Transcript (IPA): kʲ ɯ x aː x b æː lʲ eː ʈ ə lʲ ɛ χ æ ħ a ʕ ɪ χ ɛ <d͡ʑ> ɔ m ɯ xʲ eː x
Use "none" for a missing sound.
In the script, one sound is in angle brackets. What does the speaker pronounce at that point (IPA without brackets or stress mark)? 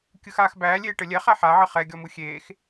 ɡʲ